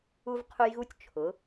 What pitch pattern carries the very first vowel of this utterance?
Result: high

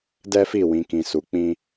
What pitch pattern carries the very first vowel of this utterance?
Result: high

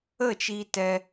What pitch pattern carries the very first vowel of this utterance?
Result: falling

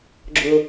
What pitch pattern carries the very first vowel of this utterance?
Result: low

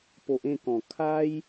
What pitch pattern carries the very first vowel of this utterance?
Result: low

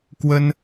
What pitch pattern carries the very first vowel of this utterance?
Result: high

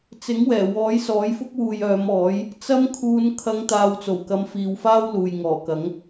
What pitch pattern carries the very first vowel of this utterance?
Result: rising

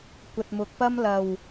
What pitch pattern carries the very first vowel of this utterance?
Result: low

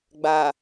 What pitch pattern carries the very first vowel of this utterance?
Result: low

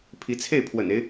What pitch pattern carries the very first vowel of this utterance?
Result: rising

